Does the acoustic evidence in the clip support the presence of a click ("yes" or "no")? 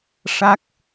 no